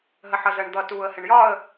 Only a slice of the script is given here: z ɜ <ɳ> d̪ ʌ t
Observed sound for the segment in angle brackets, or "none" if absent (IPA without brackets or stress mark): ɳ